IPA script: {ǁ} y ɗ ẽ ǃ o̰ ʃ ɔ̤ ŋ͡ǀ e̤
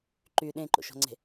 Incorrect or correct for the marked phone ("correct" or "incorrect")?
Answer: incorrect